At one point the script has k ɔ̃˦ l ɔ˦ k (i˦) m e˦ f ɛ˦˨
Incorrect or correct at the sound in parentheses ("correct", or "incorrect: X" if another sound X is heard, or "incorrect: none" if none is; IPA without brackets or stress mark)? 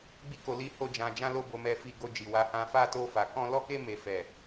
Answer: incorrect: e˦